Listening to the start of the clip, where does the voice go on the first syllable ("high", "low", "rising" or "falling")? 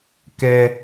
high